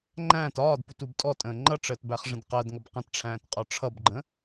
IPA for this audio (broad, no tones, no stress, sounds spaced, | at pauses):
ŋ͡ǃ æ̃ː t ɒː d p u t u b tʼ ɔ tʼ ə̃ː ŋ͡ǃ ʌ ʈ͡ʂ əː t b æ χ ʐ ə̃ d q ɜ d ŋ ʌ b q ə̃ t ʈ͡ʂʰ æ̃ː t qʼ ɒ ʈ͡ʂʰ ʌ b ɡ͡ǃ ə̃